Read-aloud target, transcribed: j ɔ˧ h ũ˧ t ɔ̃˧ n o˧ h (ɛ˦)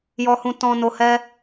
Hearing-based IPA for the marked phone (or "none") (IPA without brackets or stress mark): ɛ˦